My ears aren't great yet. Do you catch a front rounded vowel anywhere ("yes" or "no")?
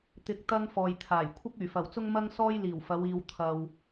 yes